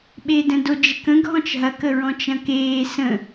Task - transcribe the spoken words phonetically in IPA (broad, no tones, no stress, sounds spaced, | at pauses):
ɓ e d ə̃ d o d͡ʒ ə k ə̃ ɡʱ ɔ̃ t͡ʃ ɦ ɐ k ə ɹ ɔ̃ t͡ʃ ɐ̃ k eː s ə̃